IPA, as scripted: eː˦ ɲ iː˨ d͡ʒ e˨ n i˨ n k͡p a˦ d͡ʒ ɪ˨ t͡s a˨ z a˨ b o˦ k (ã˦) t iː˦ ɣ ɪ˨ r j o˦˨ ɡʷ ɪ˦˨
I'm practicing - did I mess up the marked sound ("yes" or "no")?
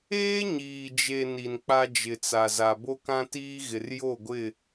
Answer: no